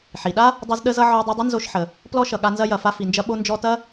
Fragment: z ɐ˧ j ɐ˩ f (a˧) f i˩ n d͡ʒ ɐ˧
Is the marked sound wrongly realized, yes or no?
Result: no